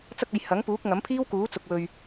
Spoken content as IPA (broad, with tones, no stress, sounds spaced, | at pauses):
t͡s ɐ˧ k̚ ɐ˨ j h ɐ˨˥ ŋ p uː˨˥ k̚ ŋ ɐ˨˥ m pʰ iː˥ w k uː˨˥ t͡s ʊ˨ k̚ w ɵ˨ ɥ